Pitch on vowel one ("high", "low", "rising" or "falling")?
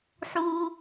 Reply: high